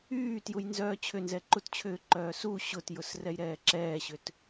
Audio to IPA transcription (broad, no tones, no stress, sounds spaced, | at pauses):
yː t j u j n z œː t͡ɕʰ ʏ n z ɛ ǃ u t t͡ɕʰ ʏː ǃ œː s u ɕ ʊ t j ʊ s r ɛ j ɾ ɛː ǁ ɛː ɕ ʏ t